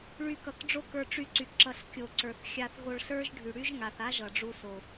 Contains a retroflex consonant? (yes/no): yes